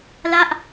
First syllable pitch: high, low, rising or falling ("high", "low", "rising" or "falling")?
falling